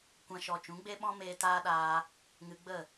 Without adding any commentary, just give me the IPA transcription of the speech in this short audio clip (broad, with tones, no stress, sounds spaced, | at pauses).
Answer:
kʷ ã˧ ʃ ɔ˨ t͡ʃ ũ˨˦ ɡ͡b e˦ ɓ ɔ̃˦ m eː˧ t aː˦ ɗ aː˧ | ŋ ɨ˧ ɡ͡b ə˦˨